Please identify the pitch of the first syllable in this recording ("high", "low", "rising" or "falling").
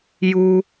high